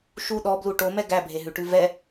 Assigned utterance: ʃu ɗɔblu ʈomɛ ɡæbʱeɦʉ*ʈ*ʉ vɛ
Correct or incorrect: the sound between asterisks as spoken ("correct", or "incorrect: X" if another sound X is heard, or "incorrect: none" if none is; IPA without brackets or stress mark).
correct